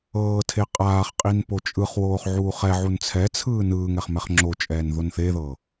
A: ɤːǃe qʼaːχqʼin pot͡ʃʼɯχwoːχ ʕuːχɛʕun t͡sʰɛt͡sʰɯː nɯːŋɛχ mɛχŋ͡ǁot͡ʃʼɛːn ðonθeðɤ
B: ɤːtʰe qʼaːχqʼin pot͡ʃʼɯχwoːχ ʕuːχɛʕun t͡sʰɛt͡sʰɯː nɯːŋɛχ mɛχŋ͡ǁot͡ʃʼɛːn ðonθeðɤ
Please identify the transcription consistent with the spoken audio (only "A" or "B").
B